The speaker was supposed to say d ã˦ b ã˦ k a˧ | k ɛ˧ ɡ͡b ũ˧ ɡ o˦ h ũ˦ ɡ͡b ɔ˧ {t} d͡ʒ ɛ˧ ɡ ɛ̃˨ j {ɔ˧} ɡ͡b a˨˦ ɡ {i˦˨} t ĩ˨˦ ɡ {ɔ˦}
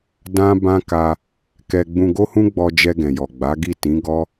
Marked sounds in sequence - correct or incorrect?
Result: incorrect: none, incorrect: ɔ˨, correct, correct

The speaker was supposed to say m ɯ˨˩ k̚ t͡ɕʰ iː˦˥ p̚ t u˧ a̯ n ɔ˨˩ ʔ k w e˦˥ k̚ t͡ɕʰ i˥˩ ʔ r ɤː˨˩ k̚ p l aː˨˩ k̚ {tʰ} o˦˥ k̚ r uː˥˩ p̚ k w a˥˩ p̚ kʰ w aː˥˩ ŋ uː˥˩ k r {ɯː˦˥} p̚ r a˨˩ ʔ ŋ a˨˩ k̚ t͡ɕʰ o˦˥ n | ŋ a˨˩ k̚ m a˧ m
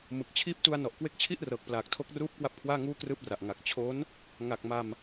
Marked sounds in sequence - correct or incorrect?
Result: correct, incorrect: ɯː˥˩

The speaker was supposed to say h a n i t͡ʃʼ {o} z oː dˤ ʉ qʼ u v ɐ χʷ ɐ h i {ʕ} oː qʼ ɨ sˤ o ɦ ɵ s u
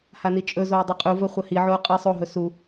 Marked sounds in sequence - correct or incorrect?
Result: incorrect: ɵ, correct

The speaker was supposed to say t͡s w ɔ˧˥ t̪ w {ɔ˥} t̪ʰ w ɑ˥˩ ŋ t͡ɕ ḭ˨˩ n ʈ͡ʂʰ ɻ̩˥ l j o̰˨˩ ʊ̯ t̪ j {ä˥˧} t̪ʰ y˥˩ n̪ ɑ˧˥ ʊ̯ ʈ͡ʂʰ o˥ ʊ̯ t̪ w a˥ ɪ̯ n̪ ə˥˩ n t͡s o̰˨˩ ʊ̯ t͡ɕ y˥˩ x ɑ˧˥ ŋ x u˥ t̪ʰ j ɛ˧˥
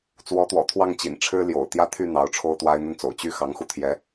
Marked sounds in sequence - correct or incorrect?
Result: incorrect: ɔ̰˨˩, correct

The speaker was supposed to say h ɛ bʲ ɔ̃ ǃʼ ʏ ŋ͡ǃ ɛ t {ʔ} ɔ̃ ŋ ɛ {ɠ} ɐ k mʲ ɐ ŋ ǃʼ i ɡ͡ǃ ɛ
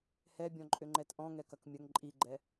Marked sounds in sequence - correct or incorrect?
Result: correct, incorrect: k

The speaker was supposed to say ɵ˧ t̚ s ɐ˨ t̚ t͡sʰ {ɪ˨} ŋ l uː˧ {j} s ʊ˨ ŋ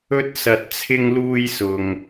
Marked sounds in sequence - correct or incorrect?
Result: incorrect: ɪ˧, correct

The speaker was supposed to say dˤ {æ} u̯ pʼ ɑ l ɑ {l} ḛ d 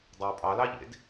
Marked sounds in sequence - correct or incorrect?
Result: correct, incorrect: ʎ

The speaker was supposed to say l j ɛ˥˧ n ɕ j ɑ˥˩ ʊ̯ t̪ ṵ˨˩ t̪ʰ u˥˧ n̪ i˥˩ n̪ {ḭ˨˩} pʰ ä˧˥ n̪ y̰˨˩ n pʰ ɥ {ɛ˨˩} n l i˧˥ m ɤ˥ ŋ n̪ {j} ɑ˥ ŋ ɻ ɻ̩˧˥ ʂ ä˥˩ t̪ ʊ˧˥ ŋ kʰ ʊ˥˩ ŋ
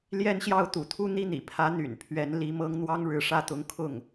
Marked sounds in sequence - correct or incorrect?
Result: correct, incorrect: ɛ˧˥, incorrect: w

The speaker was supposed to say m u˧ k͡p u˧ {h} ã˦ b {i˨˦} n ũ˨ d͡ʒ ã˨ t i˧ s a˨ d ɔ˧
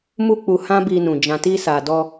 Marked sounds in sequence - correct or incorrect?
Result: correct, incorrect: i˧

